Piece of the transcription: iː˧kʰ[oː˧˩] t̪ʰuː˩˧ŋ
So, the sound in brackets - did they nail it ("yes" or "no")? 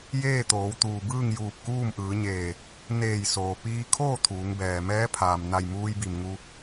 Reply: no